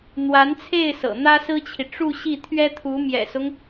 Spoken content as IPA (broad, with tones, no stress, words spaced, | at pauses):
n̪wa˧˥nt͡sʰe˥˩ɪ̯ sɤ̰˨˩n̪ä˥sɹ̩˥t͡ɕʰi˨ ʈ͡ʂu˥˧ɕi˥˩t̪ʰɥɛ˥t̪ʰu˧˥ mjɛ̰˨˩sʊ˦ŋ